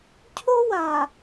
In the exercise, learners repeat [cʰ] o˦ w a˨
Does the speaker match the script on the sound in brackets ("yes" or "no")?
yes